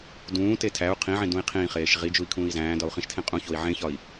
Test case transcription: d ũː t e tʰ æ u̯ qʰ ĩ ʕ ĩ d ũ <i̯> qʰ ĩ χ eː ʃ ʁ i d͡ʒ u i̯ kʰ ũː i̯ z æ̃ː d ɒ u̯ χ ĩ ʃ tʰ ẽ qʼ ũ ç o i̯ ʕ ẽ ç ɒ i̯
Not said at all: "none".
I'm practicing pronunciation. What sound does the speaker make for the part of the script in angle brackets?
i̯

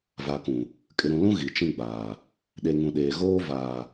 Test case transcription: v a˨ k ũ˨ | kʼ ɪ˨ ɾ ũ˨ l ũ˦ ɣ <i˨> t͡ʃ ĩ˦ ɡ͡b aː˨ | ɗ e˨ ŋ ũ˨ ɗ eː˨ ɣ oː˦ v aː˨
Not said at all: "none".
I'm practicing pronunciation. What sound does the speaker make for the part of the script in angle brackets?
i˨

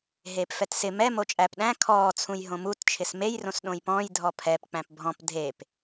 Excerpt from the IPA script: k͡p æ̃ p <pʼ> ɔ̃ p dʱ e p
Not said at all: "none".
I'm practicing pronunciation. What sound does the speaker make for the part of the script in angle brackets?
bʱ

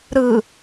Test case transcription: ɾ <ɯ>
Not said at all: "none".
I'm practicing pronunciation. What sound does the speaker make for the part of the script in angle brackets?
ɯ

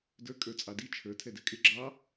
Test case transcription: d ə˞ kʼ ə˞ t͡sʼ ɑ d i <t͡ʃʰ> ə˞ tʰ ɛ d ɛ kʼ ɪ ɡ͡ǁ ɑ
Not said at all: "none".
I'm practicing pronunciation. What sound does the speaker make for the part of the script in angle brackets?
t͡ʃʰ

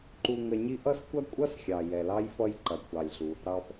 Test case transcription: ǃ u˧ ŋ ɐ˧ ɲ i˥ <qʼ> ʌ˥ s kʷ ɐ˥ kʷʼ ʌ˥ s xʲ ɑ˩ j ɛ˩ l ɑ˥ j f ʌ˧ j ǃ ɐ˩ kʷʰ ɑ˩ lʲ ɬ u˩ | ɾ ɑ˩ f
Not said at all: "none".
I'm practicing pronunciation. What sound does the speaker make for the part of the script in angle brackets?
ʔ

